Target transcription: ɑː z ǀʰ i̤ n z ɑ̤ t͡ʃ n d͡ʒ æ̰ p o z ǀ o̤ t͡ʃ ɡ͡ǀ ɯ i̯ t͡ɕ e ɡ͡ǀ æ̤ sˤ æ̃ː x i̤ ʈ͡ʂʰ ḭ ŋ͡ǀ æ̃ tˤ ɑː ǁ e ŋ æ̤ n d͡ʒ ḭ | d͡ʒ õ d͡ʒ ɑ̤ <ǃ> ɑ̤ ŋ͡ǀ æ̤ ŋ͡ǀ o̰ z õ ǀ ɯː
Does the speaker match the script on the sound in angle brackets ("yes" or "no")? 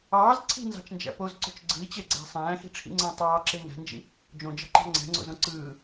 yes